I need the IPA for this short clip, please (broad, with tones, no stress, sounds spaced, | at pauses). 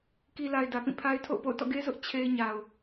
k i˨ l a˨ ɪ̯ d ä˨ p ĩ˦˨ pʰ a˦ ɪ̯ tʰ o̰˦˨ ʊ̯ p o̰˦˨ ʊ̯ t ɔ̰˦˨ ɡ e˦ z ʊ˦ ʔ t͡ɕʰ e˦ ɪ̯ ɲ a˨ ʊ̯